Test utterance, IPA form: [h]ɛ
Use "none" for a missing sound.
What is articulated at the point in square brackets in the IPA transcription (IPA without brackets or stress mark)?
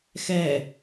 x